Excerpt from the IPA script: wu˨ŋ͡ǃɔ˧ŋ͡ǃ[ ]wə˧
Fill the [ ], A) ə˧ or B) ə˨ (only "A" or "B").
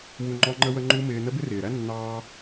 A